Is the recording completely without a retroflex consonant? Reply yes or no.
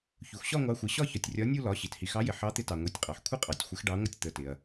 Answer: no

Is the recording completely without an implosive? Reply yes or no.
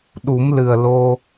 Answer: no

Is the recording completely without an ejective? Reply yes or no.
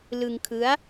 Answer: yes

